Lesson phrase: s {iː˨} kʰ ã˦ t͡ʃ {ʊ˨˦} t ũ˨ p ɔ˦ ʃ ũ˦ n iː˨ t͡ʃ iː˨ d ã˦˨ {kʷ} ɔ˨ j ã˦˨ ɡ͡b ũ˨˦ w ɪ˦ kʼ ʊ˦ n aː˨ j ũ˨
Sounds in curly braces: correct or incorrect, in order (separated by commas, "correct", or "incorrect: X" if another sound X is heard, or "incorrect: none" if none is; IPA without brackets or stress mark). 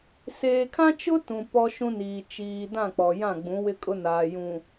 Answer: incorrect: eː˨, incorrect: ʊ˦, incorrect: k͡p